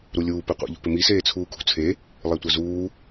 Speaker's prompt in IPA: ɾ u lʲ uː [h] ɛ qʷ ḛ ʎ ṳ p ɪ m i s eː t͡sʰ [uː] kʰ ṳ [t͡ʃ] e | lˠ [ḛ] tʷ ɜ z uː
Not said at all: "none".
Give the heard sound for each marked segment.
p, uː, t͡sʰ, e

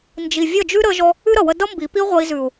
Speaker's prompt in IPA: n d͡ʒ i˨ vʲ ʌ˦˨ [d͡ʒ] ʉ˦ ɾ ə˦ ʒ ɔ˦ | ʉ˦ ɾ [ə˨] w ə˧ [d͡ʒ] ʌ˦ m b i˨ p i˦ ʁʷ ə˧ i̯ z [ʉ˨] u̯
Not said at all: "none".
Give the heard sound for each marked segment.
d͡ʒ, ʌ˨, d, ʉ˨

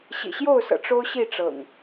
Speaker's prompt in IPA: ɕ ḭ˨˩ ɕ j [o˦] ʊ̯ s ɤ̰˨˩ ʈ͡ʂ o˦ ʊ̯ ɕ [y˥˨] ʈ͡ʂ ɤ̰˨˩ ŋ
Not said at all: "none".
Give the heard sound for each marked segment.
o˥˨, i˥˨

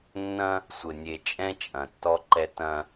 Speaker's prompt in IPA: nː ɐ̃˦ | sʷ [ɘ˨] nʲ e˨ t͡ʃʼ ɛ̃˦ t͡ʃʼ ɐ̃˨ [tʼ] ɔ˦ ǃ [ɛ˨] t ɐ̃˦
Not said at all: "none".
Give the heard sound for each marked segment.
ɘ˨, tː, ɛ˦

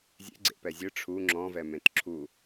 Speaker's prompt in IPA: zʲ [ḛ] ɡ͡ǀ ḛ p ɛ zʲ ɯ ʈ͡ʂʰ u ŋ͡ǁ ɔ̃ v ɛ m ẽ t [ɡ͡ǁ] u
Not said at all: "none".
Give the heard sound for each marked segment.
ḛ, ǁʰ

